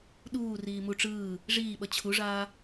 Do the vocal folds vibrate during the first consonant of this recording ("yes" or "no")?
yes